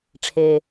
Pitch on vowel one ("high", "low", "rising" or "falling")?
low